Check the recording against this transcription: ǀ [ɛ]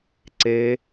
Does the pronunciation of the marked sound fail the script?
yes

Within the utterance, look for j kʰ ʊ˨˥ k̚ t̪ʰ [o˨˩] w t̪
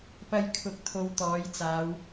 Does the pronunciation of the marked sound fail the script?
yes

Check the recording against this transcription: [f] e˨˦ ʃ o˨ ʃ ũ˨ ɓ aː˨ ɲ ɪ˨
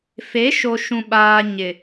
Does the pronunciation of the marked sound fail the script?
no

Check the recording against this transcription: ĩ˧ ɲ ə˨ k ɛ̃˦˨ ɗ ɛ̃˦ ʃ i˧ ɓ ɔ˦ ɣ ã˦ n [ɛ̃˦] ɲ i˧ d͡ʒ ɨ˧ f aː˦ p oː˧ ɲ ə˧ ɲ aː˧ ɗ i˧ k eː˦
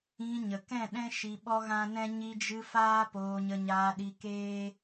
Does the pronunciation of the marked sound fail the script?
no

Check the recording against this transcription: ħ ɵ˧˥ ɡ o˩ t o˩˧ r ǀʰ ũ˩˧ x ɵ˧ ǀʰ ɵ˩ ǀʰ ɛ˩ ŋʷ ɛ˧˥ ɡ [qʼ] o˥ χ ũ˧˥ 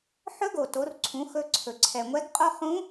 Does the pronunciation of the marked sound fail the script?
no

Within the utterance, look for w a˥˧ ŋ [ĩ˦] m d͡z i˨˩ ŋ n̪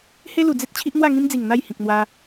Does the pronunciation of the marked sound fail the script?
no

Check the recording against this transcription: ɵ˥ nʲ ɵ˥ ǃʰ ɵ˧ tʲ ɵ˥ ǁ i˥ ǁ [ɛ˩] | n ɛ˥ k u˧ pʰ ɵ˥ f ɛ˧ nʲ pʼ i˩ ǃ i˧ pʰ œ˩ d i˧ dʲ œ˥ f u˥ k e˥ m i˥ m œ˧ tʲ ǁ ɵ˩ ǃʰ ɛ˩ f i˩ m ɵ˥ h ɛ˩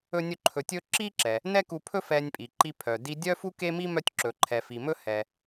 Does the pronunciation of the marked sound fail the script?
no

